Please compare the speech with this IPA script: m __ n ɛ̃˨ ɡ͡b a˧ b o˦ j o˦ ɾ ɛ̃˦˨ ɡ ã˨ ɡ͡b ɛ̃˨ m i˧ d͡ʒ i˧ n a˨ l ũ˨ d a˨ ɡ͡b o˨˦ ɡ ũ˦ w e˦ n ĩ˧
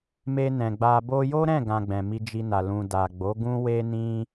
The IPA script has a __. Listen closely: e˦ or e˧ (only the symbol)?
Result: e˧